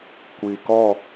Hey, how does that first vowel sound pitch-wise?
low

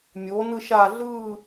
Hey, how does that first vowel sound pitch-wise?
rising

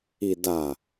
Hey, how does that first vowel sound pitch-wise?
low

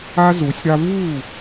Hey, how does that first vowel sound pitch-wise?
high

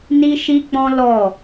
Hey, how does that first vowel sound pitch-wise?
high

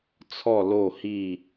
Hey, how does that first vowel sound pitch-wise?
falling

